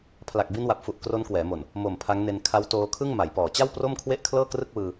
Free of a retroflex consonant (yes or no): yes